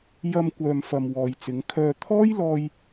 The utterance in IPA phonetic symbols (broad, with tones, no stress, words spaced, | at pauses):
jɐ˧mkʷœː˨mfɐ˨m wɔː˨jt͡sɪ˨˧ŋkʰœː˧ t̪ʰɔː˥jlɔː˧j